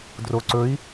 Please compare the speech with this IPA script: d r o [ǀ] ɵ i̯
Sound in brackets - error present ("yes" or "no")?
no